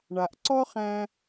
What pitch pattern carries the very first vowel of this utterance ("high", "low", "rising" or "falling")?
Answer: low